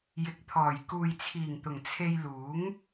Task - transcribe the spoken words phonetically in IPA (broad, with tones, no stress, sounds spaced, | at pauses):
j ɪ˨ k̚ t̪ʰ ɔː˨˩ j k uː˨ j t͡sʰ iː˨˩ ŋ t̪ ʊ˨˩ ŋ t͡sʰ e˧ j l uː˨˥ ŋ